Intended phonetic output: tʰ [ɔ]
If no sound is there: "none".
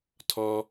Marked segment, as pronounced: ɔ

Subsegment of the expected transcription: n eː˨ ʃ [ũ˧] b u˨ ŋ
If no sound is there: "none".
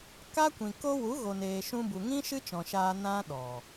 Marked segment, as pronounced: ũ˧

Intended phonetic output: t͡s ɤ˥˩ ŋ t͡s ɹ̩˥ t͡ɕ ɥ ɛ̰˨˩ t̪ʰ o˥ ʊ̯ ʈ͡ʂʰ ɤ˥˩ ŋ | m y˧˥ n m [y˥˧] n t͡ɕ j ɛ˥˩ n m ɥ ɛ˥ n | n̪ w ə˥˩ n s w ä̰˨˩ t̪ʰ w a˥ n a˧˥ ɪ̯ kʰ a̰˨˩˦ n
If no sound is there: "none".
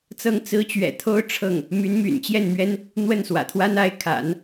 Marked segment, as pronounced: y̰˨˩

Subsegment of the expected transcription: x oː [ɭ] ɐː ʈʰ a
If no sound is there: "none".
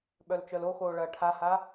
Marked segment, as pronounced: ɭ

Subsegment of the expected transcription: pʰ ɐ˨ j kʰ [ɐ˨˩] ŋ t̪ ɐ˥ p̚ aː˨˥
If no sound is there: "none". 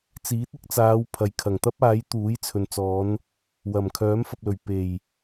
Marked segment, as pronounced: ɐ˨˩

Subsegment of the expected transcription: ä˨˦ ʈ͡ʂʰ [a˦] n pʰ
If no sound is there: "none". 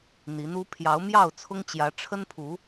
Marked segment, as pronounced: ə˦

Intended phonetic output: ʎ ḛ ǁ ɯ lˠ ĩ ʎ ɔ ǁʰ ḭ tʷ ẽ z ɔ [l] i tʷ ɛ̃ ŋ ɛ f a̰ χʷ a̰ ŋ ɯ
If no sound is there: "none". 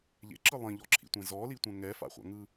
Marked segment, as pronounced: l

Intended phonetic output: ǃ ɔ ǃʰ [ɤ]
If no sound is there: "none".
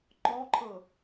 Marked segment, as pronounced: ɤ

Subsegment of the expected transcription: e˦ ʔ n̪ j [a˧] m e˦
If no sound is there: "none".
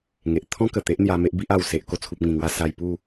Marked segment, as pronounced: a˧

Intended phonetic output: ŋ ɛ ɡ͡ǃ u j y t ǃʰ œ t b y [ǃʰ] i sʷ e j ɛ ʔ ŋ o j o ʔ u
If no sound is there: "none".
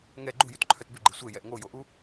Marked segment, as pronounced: ɡ͡ǃ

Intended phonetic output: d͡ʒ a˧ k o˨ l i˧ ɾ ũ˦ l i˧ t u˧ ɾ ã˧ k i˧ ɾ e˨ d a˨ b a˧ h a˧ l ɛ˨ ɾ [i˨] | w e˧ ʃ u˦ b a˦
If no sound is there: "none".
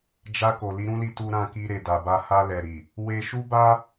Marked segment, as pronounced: i˨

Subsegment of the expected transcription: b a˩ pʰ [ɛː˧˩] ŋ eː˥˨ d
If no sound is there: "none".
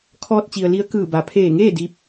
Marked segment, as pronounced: eː˧˩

